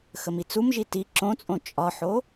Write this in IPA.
x ə m i t͡s u m ʒ i t i ǁ õ t͡sʼ õ t͡ʃʼ ɒ ħ o

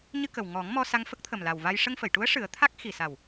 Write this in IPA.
ɲ ɨ˧ k ə˨˩ w ŋ ɔ˨˩˦ ŋ m ɔ˧ s a˧ ŋ f ə˦˥ k̚ t̪ʰ ə˨˩ m l a˨˩ w v a˧ j ʂ ə˧ ŋ f ə˨˩˨ j ʈ u˧˥ ə̯ ʂ ɨ˨˩˦ ə̯ t̪ʰ a˦˥ k̚ x i˨˩ s a˨˩ w

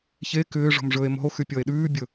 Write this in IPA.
ç e k ʏː ʐ ɔ̤ m ʐ ɵː e̯ m ɔ̤ o̯ x y pʲ ɔ e̯ ɗ ʉː bʲ ɵ

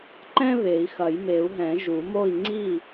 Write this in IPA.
ǃ ɛ̃˥ β e˨˩˦ i̯ x ɐ˨˩˦ j m e˨˩˦ u̯ ɦ ɛ̃˨˩˦ ʒ u˨˩˦ m o˥˨ i̯ ŋ͡ǀ i˥˨

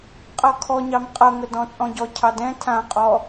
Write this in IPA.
qʼ ʌ kʰ ɔ ɲ ɑ m qʼ ʌ ŋ ə d ɔ̃ t͡sʼ ɔ̃ ɟ ɔ cʰ ɑ d ɛ̃ tʰ ã qʼ ɔ

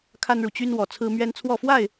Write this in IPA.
kʰ a˦ n ɻ u˨ t͡ɕ y˦ n w ɔ˥˨ t͡sʰ ɹ̩˦ m ɥ ɛ˦ n t͡sʰ w ɔ˥˨ f w a˥˨ ɪ̯

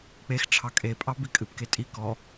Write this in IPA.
k͡p e x ʈ͡ʂʰ ɑ kʼ e pʼ ɑ b i kʼ ɨ p k e tʼ i k ɔ

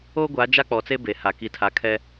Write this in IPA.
oː˦ ɡʷ a˨˦ d͡ʒ a˦ k͡p ɔ˨ t͡s e˦ b e˨ h a˨ k i˨ tʰ a˨ kʰ ɛ˦

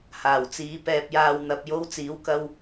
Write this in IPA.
h aː˨˩ w t͡s iː˨˧ p ɛː˨ p̚ j aː˨ w n̪ ɐ˨ p̚ j o˧ w t͡s iː˨˧ w k ɐ˧ w

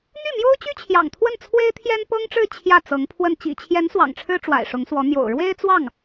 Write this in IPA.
n̪ y˥˩ m j o˥ ʊ̯ t͡ɕ y˥ t͡ɕʰ j ɑ̰˨˩ ŋ t̪ʰ w ə˥˩ n t͡sʰ w e˥ ɪ̯ t̪ʰ j ɛ˥ n p ɤ˥ ŋ ʈ͡ʂ ɻ̩˥˧ t͡ɕʰ j ä˥˩ t͡s ɤ˧˥ ŋ pʰ w ə˥˩ n t͡ɕ ḭ˨˩ t͡ɕʰ j ɛ˧˥ n s w ɑ̰˨˩ ŋ ʈ͡ʂʰ ɻ̩˥ ʈ͡ʂ w a̰˨˩ ɪ̯ ʂ ʊ˧˥ ŋ s w ɔ˧˥ n̪ j o̰˨˩ ʊ̯ ɻ w e˥ ɪ̯ t͡s w ɑ˥˩ ŋ

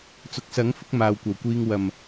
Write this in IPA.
t͡s ʊ˨ k̚ s ɐ˨˥ ŋ f ʊ˨˥ k̚ m aː˨ w kʷ ɐ˨˩ w kʷ iː˧ ŋ w ɐ˨˩ m

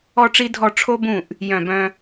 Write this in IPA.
ɔ˥ ʈ͡ʂ i˥ dʱ ɔ˥˨ ʈ͡ʂʰ o˥ b ũ˥˨ ʔ | j œ̃˥˨ b œ̃˥

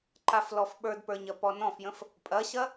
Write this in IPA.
ǃ a f l ɔ f ɓ ə˞ d p ə˞ ɲ ɐ p ɔ n ɔ̃ f j ə̃ f | pʼ ɐ ɕ ɐ

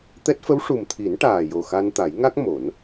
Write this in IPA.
t̪ ɛ˦˥ t̚ f ə˧˥ w ʂ u˨˩ m t̪ʰ i˨˩˦ n ʈ aː˨˩ j o˨˩ x a˧ n t̪ a˨˩˦ j ŋ a˦˥ k̚ m o˨˩˦ n

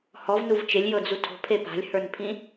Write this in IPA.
h ɔ v n u v t͡ʃ e lʲ j ɤ d͡z u tʰ o̤ pʰ e p a̤ lʲ h ə˞ n pʰ ĩ

